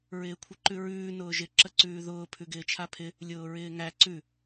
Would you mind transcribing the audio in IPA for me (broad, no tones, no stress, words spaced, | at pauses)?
ɹɪːkʷʰɪǃʉɹʉː nʊːʒɪ ǁəǀʉːðʊː pʰʉɡɪːt͡ʃʰapʰɪ | lʲʊːɹɪːŋæ ǀʉ